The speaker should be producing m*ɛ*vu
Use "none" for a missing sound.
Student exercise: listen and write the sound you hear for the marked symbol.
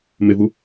ɪ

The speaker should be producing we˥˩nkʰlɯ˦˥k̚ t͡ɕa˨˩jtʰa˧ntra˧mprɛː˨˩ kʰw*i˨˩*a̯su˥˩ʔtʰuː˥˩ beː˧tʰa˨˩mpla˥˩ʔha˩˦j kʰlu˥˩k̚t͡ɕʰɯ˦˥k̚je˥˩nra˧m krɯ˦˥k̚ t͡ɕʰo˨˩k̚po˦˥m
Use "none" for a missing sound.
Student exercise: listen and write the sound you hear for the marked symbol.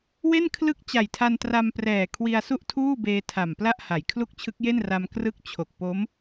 i˧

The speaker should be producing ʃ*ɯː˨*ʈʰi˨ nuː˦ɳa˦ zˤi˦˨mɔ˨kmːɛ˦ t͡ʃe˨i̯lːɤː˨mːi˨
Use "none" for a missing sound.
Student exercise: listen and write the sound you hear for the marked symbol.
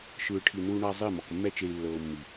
ɯː˨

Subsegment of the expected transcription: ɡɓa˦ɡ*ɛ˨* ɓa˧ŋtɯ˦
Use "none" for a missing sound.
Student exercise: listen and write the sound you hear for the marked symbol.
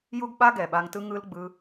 ɛ˨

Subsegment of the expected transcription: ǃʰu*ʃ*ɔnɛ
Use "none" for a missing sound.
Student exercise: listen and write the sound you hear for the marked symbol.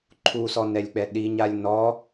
s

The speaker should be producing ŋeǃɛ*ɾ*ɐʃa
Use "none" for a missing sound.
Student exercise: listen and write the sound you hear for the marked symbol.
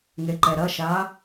ɾ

